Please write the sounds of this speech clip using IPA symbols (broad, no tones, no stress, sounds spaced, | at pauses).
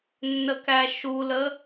nː ə k æ ʃ u l ə